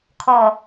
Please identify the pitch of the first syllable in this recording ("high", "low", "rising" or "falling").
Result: low